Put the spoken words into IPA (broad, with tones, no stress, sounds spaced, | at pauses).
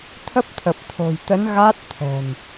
t̪ʰ ə˦˥ p̚ t̪ʰ ə˨˩ p̚ t̪ʰ o̤˨˩ j t̪ ə˨˦ n ɣ a˦˥ t̚ t̪ʰ ɛ̤˨˩ n